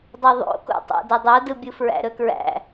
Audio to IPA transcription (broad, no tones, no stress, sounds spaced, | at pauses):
dˤ u ðˤ o̰ k o̰ tˤ æ̰ d ɵ dˤ o d ɯ bʲ ɯ f ɹ æ̰ ɾ ɵ k ɹ æ̰